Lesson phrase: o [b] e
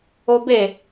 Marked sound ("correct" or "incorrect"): correct